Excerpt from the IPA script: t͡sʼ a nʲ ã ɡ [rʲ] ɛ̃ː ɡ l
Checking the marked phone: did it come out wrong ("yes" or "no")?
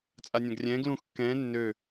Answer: no